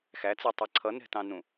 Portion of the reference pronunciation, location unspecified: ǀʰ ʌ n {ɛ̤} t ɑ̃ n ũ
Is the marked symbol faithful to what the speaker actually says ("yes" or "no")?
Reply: yes